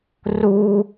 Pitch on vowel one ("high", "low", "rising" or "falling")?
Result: high